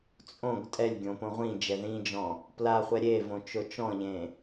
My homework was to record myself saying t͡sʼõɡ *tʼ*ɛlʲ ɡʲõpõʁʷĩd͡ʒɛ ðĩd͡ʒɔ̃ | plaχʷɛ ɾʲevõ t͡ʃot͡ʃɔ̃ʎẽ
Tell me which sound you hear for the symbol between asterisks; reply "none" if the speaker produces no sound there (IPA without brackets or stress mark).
tʼ